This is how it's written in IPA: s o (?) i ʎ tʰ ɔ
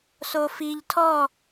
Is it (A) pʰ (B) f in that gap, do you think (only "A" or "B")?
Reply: B